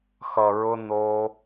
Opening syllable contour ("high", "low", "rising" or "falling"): low